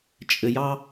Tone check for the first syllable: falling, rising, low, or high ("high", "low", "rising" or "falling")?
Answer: high